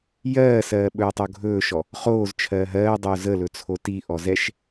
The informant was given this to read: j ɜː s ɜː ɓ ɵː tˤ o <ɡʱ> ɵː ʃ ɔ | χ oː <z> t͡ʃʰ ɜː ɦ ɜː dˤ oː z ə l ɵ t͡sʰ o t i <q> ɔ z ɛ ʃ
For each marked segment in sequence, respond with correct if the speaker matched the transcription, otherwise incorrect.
correct, correct, incorrect: ʔ

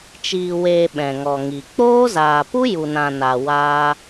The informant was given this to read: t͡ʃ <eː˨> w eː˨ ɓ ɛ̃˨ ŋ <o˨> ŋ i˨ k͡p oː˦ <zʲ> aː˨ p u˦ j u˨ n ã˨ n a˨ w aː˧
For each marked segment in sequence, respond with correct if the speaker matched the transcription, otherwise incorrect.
incorrect: iː˨, incorrect: ɔ˨, incorrect: z

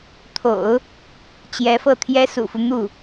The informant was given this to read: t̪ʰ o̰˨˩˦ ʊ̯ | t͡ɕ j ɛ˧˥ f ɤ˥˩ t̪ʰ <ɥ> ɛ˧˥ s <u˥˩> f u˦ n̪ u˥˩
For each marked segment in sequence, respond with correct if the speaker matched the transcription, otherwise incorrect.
incorrect: j, incorrect: ṵ˨˩

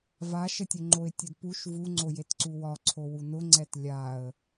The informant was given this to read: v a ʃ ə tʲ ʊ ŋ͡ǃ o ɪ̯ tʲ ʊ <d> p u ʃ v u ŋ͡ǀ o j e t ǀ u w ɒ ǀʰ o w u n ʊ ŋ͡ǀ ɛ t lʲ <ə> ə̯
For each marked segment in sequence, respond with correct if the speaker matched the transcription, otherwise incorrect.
correct, incorrect: a

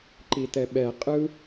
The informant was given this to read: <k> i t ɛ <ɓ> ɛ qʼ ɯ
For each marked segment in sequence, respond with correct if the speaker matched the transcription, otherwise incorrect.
incorrect: ǃ, correct

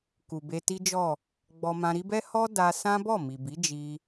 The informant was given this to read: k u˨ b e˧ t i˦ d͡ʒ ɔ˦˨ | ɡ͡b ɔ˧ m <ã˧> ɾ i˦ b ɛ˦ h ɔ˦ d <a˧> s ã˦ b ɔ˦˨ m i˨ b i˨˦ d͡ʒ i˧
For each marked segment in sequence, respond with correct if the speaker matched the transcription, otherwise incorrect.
correct, correct

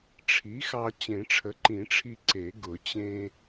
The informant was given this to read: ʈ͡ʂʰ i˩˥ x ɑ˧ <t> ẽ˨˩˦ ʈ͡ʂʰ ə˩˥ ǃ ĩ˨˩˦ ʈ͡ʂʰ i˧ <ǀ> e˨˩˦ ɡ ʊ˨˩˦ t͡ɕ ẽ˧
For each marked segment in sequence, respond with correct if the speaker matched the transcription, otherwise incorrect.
incorrect: t͡ɕ, correct

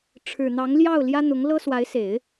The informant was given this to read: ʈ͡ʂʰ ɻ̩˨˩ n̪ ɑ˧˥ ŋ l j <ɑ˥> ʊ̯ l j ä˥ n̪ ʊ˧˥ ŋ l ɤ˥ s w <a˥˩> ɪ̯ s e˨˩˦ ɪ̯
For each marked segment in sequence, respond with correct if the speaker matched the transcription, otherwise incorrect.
incorrect: ɑ˥˩, incorrect: a˧˥

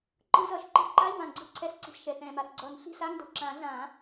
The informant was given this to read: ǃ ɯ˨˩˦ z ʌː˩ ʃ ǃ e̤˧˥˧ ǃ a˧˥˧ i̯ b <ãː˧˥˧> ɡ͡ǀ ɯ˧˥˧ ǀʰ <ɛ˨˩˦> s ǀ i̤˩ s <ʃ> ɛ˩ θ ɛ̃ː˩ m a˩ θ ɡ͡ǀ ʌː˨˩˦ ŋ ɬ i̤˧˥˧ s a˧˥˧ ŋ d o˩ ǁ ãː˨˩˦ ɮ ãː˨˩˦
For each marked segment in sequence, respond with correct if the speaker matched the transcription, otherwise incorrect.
incorrect: ãː˩, correct, correct

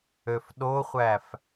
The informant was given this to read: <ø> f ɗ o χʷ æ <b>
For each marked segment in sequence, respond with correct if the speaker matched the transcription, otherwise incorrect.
correct, incorrect: f

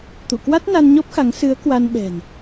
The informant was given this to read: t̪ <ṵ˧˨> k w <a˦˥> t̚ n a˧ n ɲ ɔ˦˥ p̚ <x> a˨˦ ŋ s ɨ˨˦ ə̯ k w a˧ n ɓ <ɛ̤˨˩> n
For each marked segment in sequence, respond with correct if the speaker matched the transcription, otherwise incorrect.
correct, correct, correct, correct

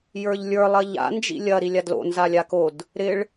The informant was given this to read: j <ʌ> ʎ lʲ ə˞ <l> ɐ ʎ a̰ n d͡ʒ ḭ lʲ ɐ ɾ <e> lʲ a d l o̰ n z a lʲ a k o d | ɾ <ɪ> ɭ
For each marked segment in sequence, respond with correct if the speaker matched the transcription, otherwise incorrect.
incorrect: ə˞, incorrect: lˠ, incorrect: i, correct

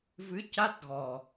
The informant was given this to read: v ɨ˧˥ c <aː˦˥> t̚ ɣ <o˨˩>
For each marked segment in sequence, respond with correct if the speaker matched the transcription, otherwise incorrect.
incorrect: a˦˥, incorrect: ɔ˨˩

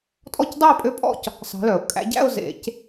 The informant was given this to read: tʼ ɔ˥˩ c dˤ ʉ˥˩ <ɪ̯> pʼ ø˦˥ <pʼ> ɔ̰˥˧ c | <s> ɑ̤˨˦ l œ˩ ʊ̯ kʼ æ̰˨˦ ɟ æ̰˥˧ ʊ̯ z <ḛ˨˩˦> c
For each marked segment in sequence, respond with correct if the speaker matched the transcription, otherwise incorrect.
correct, correct, correct, correct

